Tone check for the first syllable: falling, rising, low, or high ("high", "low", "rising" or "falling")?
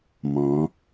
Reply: rising